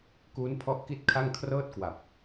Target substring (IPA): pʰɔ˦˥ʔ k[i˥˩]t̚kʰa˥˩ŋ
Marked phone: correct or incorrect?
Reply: correct